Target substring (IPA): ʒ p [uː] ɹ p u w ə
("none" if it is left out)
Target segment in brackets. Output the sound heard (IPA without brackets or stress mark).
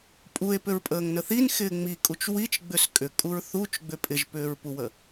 ʏː